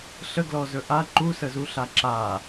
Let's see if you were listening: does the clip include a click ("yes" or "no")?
yes